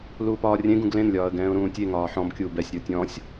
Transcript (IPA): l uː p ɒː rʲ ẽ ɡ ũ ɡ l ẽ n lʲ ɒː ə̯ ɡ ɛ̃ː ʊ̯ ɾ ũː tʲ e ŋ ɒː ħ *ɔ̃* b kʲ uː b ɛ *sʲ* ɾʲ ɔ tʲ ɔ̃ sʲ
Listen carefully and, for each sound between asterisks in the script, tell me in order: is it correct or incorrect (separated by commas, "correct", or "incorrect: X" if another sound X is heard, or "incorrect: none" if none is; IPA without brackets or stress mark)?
correct, correct